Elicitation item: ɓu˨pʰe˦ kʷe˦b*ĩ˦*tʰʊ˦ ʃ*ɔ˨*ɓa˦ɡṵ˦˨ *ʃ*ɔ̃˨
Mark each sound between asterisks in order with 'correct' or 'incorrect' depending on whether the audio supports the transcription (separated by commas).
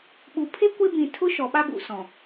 incorrect, correct, incorrect